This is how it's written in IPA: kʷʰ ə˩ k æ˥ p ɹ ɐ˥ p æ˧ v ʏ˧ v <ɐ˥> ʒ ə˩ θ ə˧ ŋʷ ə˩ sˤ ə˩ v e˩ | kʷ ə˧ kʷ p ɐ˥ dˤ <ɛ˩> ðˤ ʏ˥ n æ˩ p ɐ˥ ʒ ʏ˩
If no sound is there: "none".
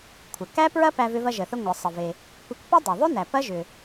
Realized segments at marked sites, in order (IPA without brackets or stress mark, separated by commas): ɐ˧, ɛ˩